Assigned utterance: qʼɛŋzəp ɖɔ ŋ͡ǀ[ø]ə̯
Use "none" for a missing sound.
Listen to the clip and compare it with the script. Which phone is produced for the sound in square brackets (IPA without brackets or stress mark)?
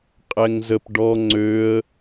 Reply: ø